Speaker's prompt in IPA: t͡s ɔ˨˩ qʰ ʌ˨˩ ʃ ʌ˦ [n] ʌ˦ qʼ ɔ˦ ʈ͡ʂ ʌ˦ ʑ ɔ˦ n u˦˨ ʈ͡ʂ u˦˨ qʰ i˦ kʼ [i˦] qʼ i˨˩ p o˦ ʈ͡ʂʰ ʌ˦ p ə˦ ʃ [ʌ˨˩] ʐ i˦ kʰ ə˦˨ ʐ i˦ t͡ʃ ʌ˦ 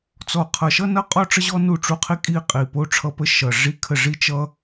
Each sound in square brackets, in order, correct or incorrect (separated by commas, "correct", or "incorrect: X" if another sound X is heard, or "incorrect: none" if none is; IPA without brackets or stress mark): correct, correct, correct